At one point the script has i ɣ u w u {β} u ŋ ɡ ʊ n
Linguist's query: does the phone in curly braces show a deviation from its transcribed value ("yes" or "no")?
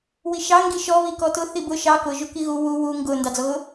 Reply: yes